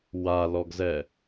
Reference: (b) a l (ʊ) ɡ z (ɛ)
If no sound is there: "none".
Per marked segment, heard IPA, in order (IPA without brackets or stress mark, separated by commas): w, ɔ, ɛ